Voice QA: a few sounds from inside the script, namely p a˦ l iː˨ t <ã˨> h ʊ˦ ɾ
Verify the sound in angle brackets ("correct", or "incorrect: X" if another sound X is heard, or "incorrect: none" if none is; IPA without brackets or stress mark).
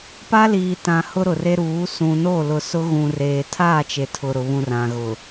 correct